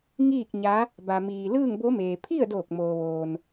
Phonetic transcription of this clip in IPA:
ŋ iː˥˨ k̚ ɲ a˧˥ | b a˧ m iː˧ l ɯː˥˨ ŋ b o˧˥ m eː˩ pʰ i˥˨ ə̯ d oː˧˩ k̚ m oː˩ ʋ oː˩ n

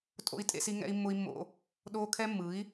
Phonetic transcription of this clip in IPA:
tʼ o̰˦ i̯ tʼ ḛ˦ s i˦ ŋ ɛ̰˦ i̯ mː ʊ˦ i̯ mː o̰˦ | ɗ oː˦ kʰ ɛ˦ mː ɯ˨˦ i̯

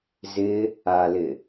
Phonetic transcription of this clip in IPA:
z ɪ | a l ɪ

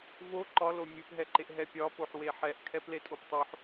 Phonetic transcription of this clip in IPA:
v o ǃ ɒ l o mʲ ɯ p ɦ ɛ ǃ e ʔ ɦ ɛ pʲ ɒ p o ħ w e ħ ɛ ʔ kʰ ɛ p l e tʼ o p tˤ o ħ

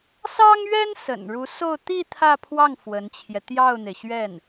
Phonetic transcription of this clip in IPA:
s ɑ˥ ŋ ɥ ɛ˥ n s ə̰˨˩ n ɻ u˧˥ s o˥˧ ʊ̯ t̪ i˥˧ t̪ʰ ä˥˧ pʰ w ɑ˥˩ ŋ f w ə˧˥ n t͡ɕʰ j ɛ˧ t̪ j ɑ˥˩ ʊ̯ n̪ e˩ ɪ̯ ɕ ɥ ɛ˥˩ n

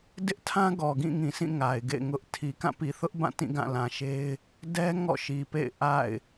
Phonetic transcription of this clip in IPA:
d ɪ˦ ʔ tʰ ã˦ ɡ ɔ˨ ɡ ĩ˦˨ ŋ ĩ˨ sʰ ĩ˦˨ ŋ a˨ ɪ̯ ɡ ḛ˦˨ ɪ̯ ŋ ʊ˦ ʔ tʰ i˨ k ã˦˨ p i˨ θ ʊ˦ ʔ b ã˦˨ t ĩ˦˨ ɡ ã˦˨ l ã˨ ʃ e˦ ɪ̯ | d ɛ˦ ŋ ɔ̰˦˨ ʃ i˨ p ḛ˦˨ ɪ̯ ʔ a̰˦˨ ɪ̯

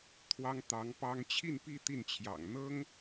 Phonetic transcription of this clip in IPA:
t̪ʰ w ɑ˥ ŋ t̪ ɑ˧˥ ŋ p ɑ˥ ŋ t͡ɕʰ i˥˧ n p i˥˧ t̪ i˥˩ n t͡ɕʰ j ɑ̰˨˩ ŋ n̪ ɤ˥ ŋ

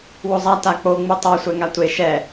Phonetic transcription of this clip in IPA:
w o zˤ a t a k͡p o ŋ͡m u tˤ a sʷ ɛ ŋ a tʷ e ʃ ɛ

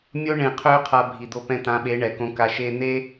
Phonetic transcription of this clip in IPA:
mʲ o˦ ɳ ẽ˧ qʰ ø˦ qʰ a˧ bʱ i˨ d̪ o˧ p ɛ̃˧ t̪ ã˨˦ ɓ e˨˦ ɳ ɛ˨ k õ˧ k a˧ ʃ e˧ n̪ e˦

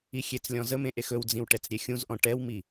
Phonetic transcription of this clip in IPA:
i xʲ e t͡s lʲ ɔ̃ z ə m ẽ ʔ e x ɵ w d͡z ĩ w ʈ ɛ t͡s ɾʲ e xʲ ũ z ʔ ɔ̃ ʈ ɛ w m i

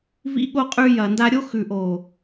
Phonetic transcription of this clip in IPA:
v ḭ˧ ɠ o˧ qʼ ʉ˧ j ɐ˨ n d a˧ ɾʲ o˦ x ʉ˨ ʔ o˨

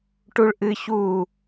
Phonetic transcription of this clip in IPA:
ʈ u ɭ ʔ ɨ ç uː

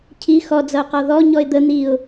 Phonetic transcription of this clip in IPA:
cʰ i x ɔ d͡z ʌ ʊ̯ q ɔ ð ɔ ɲ ɔ ɪ̯ d̪ ə n̪ i ʊ̯

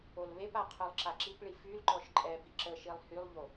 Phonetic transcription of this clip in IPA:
o l β e p a qʰ œ lˠ ǁ a ǁ i p ɭ i f y l ǃ ɔ ʃ ǃʼ ɛ b i ǁ ə ʃ i lˠ h y lˠ ʎ o

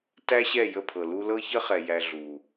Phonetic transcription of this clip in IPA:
t æ˦ ɕ ɛ˦˨ j ə˦˨ pʰ ɤ˨ l u˧ l ɤ˦ ç ə˦ χ ɛ˨ j æ˧ ɮ u˨

